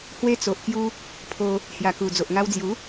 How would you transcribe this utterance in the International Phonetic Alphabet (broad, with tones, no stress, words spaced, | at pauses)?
hwe˧t͡so˨ʔkju˧ | pʰo˧ | hja˨˩ku˨˩ d͡zo˨ʔŋa˧wd͡zju˨˦